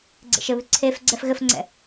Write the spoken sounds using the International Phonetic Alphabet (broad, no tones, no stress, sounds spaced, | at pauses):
ɡ͡ǀ ḛ ʃ ɘ β ʉ ǀʰ e f ɡ͡ǀ ɛ f ɣ ɘ f ŋ͡ǀ ɛ̰